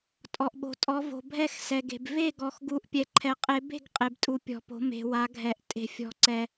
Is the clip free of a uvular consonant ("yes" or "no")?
no